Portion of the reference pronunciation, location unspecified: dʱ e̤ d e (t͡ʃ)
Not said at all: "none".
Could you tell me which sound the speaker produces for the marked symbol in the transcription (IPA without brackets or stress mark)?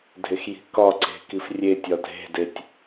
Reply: tʲ